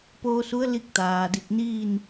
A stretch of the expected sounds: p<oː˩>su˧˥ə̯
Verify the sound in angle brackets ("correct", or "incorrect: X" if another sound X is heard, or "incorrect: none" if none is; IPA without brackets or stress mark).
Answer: incorrect: oː˧